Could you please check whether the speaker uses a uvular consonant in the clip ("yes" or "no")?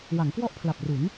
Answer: no